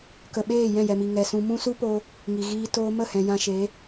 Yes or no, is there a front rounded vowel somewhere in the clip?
no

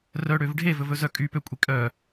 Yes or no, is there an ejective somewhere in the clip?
yes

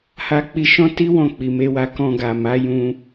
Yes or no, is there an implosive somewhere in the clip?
no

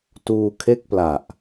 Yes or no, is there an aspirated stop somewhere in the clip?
yes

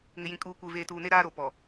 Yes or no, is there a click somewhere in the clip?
no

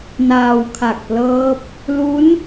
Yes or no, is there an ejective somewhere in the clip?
no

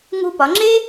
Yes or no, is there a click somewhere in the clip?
yes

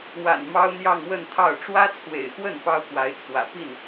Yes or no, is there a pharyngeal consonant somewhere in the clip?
no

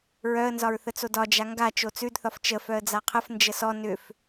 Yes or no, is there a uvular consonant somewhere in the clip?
yes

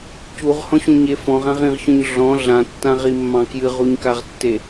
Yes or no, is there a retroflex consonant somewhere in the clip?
no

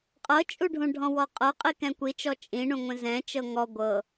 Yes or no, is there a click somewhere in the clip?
no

